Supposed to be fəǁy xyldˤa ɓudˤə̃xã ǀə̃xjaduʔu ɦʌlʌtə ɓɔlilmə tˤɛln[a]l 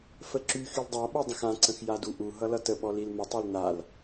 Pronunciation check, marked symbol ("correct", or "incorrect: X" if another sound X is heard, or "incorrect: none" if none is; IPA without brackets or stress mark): correct